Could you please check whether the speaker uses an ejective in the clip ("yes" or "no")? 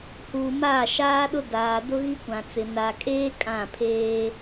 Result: yes